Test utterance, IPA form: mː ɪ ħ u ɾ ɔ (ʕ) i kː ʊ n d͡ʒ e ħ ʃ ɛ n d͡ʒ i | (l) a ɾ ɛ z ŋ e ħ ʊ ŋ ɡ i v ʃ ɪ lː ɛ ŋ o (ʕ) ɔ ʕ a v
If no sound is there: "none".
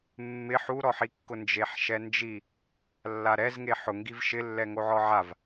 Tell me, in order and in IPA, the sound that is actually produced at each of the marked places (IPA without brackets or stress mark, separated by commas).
ħ, lː, ʕ